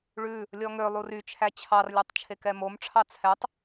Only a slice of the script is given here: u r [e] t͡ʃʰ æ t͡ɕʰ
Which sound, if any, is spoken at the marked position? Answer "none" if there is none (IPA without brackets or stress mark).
y